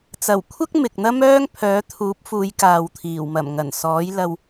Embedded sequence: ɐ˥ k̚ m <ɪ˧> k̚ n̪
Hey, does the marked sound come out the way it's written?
no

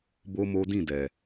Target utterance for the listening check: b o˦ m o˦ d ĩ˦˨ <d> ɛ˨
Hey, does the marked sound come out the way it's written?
yes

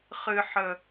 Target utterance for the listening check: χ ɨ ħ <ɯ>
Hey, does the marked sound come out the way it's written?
no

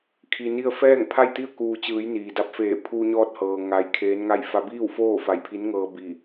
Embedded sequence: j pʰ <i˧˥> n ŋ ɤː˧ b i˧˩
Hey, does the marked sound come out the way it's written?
yes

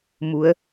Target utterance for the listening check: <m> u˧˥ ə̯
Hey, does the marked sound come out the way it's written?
yes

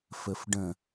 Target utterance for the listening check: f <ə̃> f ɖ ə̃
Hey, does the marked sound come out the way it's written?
no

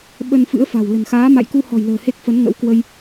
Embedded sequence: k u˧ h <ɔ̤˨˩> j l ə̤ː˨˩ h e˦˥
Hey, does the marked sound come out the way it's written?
yes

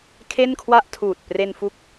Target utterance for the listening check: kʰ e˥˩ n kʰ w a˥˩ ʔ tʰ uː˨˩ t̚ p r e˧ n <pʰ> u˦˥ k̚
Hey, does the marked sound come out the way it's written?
no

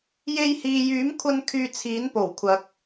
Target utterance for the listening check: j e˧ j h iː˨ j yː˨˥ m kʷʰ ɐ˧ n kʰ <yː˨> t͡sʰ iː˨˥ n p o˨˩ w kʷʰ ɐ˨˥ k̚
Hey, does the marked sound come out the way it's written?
no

